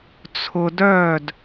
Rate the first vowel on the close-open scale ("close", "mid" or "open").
close